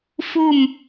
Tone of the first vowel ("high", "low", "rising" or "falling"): falling